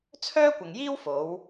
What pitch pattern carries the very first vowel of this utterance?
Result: high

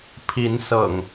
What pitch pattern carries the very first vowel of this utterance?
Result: rising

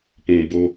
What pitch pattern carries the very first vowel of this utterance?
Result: low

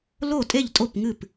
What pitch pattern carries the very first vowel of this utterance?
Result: falling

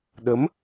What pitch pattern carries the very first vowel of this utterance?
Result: rising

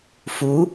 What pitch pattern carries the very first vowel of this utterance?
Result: rising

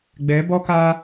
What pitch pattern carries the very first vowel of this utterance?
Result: rising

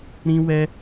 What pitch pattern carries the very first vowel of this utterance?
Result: high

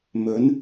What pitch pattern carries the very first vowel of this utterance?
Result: rising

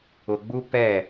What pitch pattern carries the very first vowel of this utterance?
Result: low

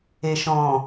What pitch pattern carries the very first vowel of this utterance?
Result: low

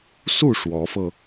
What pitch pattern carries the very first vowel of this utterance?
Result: falling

